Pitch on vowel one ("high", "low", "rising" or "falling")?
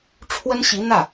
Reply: high